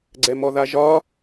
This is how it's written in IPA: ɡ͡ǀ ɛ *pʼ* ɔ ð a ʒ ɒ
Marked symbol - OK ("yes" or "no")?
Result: no